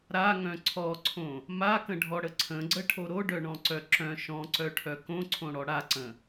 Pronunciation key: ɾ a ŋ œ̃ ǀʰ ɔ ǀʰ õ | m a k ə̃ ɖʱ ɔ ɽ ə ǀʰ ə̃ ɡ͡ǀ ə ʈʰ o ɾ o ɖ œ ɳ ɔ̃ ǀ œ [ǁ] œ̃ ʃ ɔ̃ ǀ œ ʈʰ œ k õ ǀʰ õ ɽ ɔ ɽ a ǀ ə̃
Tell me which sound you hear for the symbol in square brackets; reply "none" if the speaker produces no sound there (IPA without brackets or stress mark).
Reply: ǁ